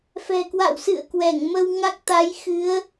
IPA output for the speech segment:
f ɛ̤˨˩ k w a̰˧˨ w s ɨ̰˧˨ ə̯ k w ɛ˧˩ ŋ m ə˧ w ŋ a˦˥ k̚ t̪ a˨˦ j x ɨ˨˦ ə̯

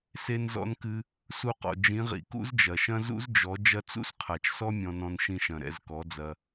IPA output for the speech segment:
s e˧ n z ɔ̰˧ n k ɨ˧ | s u˧ q ɔ̰˨ d͡ʒ ĩ˨˦ ʁ ḭ˨ k ṵ˦ z d͡ʒ ɐ˨ ʃ ɐ̃˦ z ṵ˦ z d͡ʒ ɔ˨˦ d͡ʒ ɐ˧ t͡s ṵ˦ s qʰ a˨ t͡ʃ s ɔ˦ mʲ ɔ̃˧ n ɔ̃˧ n ʃ ĩ˧ ʃ ɐ̃˨ ɾ ɛ̰˦˨ z k ɔ˨˦ d͡z ɐ˧

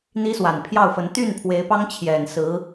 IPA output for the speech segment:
n̪ i˥ s w a˨˩ n pʰ j ɑ˥˩ ʊ̯ f ə˧˥ n t̪ y˥˩ n pʰ w e˧˥ ɪ̯ p ɑ˥ ŋ t͡ɕʰ j ɛ˨˩ n s ɹ̩˧˥

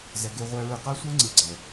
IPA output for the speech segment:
z ɛ˧ ɡ e˦ ʁʷ ɛ˦ ɹ ɯ˦ q a˦ sʷ ɛ˦ ŋ͡ǀ ɯ˨ ɡ͡ǀ ɛ˨

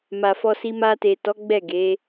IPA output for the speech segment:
m a˨ f ɔ˧ s i˧ m a˧ t e˨ t ɔ˨˦ ɡ͡b ɛ˦˨ ɡ e˨˦

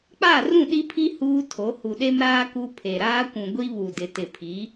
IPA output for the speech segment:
k͡p a˦˨ r ũ˦˨ ɗ i˦ pʰ i˦ h uː˦ tʰ o˨˦ h u˨ ɗ e˦ m ɾ aː˦ k u˦ pʰ e˨ ɾ aː˦ kʷ ũ˨ ɡʷ i˦ β u˨ d ɪ˨ t ɪ˨ pʰ i˨˦

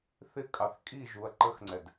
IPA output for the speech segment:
θ ɪ kʼ ɑ θ kʼ i ʒ u ɐ̯ ǃ ə x ŋ͡ǀ ɛ d

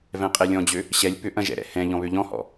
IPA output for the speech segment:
v ɛ̃ qʼ e lʲ ɔ̃ d͡ʑ ø | ɕ ɛ lʲ p ʏ ʔ ɐ̃ ʒ ɛ̰ ɾ ɛ̰ h ɛ̃ ʎ ɔ̃ β ø ʎ ɔ̃ h ɔ̰

